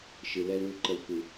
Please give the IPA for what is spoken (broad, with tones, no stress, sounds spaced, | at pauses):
ʃ ɨ˨ l ɛ˦ l ũ˦ l ǃ ə˦ l kʷ ɨ˦